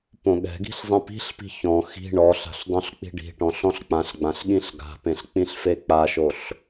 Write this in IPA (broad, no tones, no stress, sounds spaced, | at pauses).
p õ ɠ ɛ̤ ɡ i̤ ɬ zˤ ĩ p i̤ ɬ p i̤ ç ɔ̃ x i̤ ɳ ɔ ɬ a̤ ɬ dˤ õ ɬ k͡p i̤ ɖ i̤ ʈ ɔ̃ ɬ ɔ̃ ɬ k͡p ã ɬ ɡ͡b ã ɬ ɠ ĩ ɬ ɡ a̤ p ẽ ɬ k͡p ĩ ɬ f e k͡p a ʃ o ɬ